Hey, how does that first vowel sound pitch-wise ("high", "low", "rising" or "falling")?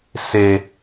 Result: low